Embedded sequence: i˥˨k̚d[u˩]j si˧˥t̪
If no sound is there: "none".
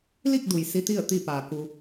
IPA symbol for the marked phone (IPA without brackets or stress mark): u˩